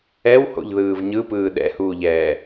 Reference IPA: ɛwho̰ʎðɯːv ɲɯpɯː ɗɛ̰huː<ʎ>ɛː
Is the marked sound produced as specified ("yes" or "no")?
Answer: yes